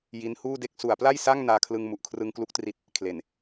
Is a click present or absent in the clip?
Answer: absent